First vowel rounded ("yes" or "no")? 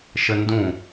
no